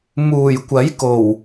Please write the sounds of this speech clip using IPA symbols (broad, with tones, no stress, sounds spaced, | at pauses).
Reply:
m uː˨˩ j kʷ ɐ˨˥ j k o˨˩ w